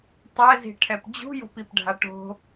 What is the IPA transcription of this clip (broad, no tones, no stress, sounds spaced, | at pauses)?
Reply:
tˤ ɛ z i̤ ʈʰ ɛ p d͡ʑ ṳ j o̤ p i p ɖʱ a ʈ o̤